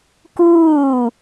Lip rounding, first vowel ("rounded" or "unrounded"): rounded